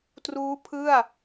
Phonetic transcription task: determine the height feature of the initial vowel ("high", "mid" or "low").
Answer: high